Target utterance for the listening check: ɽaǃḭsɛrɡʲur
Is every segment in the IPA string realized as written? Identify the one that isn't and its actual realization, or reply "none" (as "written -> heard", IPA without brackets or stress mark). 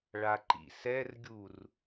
ɽ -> ɭ